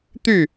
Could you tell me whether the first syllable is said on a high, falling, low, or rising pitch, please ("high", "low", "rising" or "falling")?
falling